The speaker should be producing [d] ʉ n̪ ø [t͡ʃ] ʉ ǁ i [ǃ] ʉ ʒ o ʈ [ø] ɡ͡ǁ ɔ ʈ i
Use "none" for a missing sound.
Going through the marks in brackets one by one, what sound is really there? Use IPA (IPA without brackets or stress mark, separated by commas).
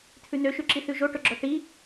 t̪ʰ, ʃ, θ, ɵ